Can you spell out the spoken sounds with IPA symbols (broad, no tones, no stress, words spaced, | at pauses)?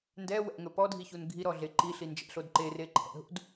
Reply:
ndɛ wɛ̰ŋɵ pɔdʱiçun ɡʱiɾɔɮe ǃiɬi nd͡ʒɛ̰ɬod ǃereǃʰɛ̰ɦṵd